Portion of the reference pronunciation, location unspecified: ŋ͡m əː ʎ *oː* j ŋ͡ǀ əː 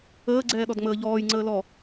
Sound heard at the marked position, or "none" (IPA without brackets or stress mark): ɔː